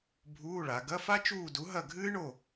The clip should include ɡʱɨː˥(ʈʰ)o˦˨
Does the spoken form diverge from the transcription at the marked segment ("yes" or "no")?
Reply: yes